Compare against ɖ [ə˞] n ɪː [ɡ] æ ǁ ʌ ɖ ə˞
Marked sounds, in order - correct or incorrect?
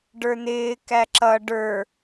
correct, incorrect

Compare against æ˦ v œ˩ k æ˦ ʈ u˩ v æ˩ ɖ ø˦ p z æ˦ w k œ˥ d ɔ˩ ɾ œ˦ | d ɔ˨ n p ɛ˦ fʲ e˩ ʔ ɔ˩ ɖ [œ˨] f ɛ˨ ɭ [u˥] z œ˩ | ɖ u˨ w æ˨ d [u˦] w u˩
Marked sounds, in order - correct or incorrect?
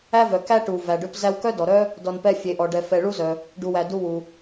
incorrect, correct, correct

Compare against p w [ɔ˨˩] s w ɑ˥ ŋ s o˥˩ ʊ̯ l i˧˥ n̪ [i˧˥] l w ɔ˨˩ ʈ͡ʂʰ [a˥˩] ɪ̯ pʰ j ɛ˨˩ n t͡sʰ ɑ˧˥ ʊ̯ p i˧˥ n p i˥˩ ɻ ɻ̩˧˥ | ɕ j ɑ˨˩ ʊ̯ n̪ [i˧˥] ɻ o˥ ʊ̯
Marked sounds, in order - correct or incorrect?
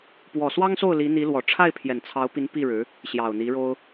correct, correct, correct, correct

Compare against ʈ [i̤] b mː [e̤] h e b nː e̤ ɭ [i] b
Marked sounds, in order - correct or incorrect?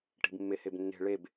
correct, incorrect, incorrect

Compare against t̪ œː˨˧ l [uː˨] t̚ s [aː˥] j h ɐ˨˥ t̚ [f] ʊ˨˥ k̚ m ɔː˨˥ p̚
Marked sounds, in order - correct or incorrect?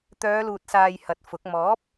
correct, incorrect, correct

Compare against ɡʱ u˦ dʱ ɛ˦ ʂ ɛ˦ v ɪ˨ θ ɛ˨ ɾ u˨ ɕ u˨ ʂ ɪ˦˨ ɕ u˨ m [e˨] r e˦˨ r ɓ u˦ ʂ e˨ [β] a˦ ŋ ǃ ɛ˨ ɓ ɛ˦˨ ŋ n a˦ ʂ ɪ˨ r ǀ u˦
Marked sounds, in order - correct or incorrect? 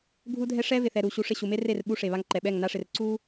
incorrect, correct

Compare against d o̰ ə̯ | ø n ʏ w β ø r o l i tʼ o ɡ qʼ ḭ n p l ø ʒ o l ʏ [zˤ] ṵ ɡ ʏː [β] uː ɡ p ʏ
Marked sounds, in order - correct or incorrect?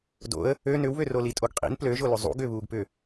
correct, correct

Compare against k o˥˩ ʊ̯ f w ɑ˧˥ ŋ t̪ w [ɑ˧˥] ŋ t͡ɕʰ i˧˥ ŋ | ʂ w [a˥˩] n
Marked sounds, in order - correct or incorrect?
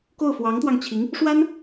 incorrect, incorrect

